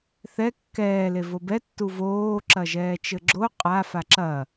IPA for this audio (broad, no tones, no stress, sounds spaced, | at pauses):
θ ɛ kː ɛː l e v o b ɛ tː u v oː ǁ ɐ ʒ ɛː t͡ʃ ɘ ɡ͡ǁ o qʼ a f a ǁ ɐ